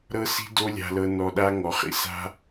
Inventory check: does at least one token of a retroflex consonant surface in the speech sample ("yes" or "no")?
no